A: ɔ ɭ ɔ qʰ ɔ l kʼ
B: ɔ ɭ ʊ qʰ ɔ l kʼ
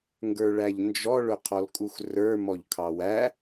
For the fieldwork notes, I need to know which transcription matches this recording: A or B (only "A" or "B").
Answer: B